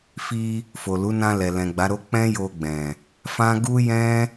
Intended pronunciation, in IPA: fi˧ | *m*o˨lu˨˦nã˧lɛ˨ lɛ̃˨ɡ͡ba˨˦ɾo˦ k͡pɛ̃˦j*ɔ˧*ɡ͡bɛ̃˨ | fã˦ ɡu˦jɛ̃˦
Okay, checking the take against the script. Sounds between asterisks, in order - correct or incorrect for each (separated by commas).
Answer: incorrect, incorrect